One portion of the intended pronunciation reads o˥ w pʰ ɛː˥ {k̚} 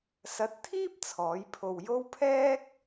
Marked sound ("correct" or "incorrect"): correct